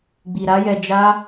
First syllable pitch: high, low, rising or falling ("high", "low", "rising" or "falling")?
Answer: low